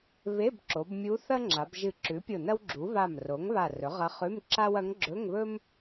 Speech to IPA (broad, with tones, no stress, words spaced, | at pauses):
βe˧˥˧bǁo˩˧bmʲu˧˥ θɐ˥ ŋ͡ǁa˩˧bʒɨ˧˩ ǁʉ˩˥pʲo˧˩ nɐ˥wɡ͡ǁu˩˥ βa˧˩m ro˩˥ŋβa˧˩ rɵ˩˥ʁɐ˧˥χʉ˧˥˧mǁa˥w ɐ˧˥ŋɡ͡ǁɵ˧˥˧ŋβɵ˥m